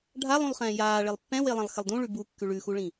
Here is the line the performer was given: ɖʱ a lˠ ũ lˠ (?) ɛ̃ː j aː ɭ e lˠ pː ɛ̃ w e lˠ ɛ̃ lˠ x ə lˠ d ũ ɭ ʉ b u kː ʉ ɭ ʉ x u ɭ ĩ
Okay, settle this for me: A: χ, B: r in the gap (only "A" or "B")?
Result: A